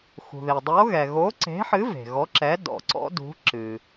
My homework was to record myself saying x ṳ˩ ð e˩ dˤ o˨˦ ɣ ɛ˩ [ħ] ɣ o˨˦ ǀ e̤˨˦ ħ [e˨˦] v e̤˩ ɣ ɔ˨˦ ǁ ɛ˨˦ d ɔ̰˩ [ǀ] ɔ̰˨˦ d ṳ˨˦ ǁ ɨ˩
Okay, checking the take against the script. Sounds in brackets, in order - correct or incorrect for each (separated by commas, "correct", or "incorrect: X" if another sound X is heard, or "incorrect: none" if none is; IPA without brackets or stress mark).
incorrect: none, incorrect: ɨ˨˦, correct